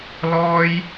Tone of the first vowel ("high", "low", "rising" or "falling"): high